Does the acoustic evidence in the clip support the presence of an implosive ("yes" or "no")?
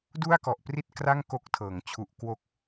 no